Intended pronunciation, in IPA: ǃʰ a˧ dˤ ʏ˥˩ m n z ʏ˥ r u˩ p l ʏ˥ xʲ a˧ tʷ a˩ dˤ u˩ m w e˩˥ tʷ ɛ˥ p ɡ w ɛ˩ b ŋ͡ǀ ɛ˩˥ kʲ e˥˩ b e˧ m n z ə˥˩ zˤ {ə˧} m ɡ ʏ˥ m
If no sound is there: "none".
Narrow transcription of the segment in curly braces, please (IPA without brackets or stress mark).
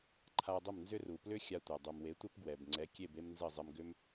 ə˧